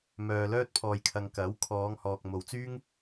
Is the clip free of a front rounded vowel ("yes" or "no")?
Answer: no